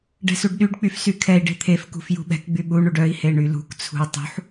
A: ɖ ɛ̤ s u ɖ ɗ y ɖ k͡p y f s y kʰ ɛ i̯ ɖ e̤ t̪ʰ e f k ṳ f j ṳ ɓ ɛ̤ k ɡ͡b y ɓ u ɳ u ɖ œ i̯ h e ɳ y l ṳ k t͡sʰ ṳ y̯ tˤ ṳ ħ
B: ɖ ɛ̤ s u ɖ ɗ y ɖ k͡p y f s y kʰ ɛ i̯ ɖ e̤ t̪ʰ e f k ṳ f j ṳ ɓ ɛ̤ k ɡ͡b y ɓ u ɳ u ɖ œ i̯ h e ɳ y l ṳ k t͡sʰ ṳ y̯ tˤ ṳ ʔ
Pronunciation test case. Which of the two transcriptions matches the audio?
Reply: A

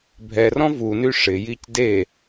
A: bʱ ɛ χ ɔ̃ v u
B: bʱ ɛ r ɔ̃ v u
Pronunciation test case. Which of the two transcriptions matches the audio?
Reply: B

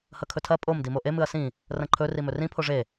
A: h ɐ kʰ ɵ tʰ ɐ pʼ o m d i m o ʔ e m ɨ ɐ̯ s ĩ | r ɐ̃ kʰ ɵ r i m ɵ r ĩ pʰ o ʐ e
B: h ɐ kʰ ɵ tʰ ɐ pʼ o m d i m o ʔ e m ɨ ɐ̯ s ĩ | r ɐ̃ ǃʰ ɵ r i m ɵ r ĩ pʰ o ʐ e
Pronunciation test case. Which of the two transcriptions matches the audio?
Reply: B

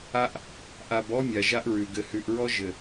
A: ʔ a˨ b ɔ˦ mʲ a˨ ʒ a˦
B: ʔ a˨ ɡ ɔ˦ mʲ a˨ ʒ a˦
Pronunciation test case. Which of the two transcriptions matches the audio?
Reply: A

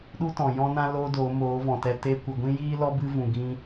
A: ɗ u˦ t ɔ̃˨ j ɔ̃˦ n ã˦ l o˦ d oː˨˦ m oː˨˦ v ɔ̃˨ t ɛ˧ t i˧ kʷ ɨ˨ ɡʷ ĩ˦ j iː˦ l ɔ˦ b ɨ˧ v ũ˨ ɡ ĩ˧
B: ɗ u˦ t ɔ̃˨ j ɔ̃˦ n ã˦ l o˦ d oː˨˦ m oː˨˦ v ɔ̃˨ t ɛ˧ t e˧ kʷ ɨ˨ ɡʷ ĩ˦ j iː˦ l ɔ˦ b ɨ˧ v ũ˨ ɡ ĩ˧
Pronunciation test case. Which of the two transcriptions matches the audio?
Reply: B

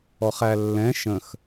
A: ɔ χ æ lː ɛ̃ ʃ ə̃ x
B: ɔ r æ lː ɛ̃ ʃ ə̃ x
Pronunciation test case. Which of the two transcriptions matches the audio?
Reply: A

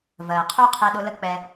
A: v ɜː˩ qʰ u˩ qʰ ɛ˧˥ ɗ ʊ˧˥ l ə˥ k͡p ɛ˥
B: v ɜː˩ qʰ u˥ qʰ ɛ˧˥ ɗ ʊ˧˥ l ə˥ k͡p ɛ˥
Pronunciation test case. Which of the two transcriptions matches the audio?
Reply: B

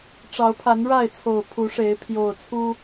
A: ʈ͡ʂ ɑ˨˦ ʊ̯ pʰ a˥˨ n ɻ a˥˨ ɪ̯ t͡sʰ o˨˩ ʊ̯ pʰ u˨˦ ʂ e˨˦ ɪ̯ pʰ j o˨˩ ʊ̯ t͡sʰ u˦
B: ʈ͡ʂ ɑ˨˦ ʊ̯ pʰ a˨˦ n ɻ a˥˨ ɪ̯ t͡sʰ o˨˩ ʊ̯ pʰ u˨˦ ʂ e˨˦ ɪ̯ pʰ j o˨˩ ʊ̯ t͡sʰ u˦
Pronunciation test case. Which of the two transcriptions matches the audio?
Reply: B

